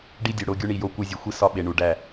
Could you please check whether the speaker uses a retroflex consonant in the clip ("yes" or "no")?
yes